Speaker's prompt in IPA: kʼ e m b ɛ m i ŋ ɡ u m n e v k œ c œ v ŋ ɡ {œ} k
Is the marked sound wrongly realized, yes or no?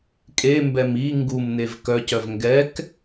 yes